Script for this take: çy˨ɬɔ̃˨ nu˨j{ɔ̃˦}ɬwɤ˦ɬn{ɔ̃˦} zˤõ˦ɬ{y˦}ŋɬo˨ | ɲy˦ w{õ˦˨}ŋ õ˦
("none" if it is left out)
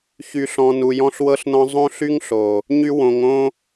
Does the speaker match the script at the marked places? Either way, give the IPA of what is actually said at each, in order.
ɔ̃˦, ɔ̃˦, y˦, õ˨

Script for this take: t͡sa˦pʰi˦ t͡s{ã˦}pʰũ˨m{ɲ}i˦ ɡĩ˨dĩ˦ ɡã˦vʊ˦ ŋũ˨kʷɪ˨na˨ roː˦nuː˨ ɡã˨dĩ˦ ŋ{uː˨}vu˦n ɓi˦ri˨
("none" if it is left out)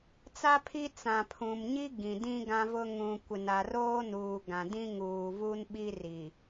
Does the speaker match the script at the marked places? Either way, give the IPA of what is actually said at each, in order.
ã˨, ɲ, uː˨

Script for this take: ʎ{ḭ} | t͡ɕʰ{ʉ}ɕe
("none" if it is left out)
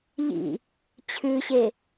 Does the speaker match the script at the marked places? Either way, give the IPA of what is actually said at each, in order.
ḭ, ʉ

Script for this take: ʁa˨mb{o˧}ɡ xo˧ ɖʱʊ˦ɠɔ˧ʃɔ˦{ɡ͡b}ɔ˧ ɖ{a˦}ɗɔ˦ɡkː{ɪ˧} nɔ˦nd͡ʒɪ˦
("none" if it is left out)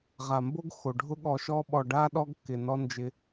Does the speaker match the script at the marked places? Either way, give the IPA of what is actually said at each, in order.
o˦, ɓ, a˦, ɪ˧

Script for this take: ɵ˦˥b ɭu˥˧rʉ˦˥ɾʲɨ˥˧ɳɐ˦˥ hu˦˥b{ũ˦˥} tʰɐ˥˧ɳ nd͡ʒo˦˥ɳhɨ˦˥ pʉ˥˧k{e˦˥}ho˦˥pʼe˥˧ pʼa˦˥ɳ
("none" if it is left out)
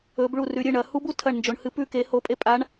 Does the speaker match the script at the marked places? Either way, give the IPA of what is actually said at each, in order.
u˦˥, e˦˥

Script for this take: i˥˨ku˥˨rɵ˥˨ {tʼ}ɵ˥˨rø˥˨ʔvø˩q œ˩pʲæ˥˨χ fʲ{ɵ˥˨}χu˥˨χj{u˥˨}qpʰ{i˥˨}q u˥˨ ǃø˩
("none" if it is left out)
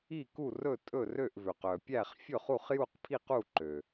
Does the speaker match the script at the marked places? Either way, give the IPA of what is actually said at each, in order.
tʼ, ɵ˥˨, u˥˨, i˥˨

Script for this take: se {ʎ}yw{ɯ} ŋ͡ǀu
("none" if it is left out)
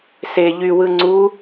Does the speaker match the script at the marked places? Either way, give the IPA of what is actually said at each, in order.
ʎ, ɯ

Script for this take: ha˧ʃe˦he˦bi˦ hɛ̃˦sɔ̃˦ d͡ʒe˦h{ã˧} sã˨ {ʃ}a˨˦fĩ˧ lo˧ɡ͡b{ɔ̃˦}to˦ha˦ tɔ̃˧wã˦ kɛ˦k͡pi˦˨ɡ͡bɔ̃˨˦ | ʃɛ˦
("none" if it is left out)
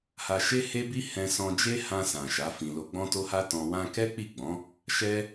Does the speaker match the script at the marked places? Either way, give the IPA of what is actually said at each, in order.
ã˧, ʃ, ɔ̃˦

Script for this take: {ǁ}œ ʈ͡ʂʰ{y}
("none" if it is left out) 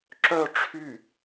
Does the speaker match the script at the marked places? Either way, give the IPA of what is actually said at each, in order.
ǁ, y

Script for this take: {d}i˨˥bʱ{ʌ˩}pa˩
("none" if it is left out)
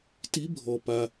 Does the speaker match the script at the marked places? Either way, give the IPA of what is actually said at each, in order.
t, ɔ˩

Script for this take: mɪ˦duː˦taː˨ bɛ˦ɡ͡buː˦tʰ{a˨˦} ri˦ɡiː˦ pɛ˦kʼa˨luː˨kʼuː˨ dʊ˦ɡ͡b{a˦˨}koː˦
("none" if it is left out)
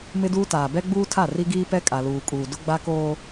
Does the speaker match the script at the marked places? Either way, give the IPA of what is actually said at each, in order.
a˦˨, a˦

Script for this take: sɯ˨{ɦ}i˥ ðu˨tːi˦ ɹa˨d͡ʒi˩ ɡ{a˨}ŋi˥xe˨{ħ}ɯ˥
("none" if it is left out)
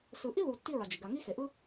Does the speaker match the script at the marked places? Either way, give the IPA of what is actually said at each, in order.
ʔ, a˨, ʔ

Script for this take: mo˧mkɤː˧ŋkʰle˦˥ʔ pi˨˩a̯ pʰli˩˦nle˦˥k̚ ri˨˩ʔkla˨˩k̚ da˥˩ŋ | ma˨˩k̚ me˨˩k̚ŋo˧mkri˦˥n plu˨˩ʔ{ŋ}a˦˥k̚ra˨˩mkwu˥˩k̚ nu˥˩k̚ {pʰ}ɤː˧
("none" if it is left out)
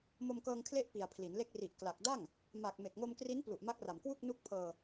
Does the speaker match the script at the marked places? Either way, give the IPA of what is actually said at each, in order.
m, pʰ

